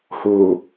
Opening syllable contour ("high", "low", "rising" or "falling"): low